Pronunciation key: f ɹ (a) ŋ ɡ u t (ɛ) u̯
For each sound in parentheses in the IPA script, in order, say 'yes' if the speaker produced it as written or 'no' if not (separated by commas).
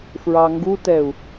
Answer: no, yes